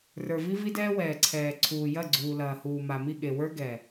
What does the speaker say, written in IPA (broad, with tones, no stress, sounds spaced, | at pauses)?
r ə˞˨ v i˦ v i˦ d ɛː˦ w ɛː˨ ǀʰ ɛː˨ ǀʰ uː˨ j ɐ˦˨ ɡ͡ǀ uː˨ l ɐː˨ h uː˨ m a˨ m i˦˨ ɠ e˨ w ə˞˦ ɡ ɛ˨